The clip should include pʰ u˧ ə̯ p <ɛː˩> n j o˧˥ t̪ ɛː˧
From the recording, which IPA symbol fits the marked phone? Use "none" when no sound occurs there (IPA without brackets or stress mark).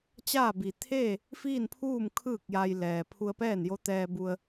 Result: ɛː˥˨